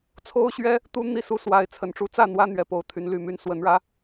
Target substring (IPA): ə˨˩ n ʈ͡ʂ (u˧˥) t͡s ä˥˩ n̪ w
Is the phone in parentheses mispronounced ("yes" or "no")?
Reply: no